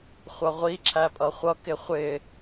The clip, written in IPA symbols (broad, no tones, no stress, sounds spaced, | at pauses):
χʷ ʌ ʁʷ i ǁʰ æ pʼ ʌ χʷ ʌ k ɪ χʷ ɪ